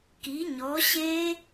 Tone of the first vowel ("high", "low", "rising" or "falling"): rising